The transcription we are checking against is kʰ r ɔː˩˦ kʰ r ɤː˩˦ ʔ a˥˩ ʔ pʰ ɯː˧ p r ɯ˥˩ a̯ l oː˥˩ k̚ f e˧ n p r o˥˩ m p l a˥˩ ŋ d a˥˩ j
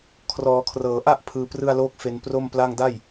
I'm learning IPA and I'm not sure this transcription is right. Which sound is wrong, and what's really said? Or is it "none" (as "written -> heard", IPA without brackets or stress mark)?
none